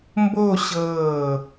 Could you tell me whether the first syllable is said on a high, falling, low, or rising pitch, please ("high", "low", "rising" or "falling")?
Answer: falling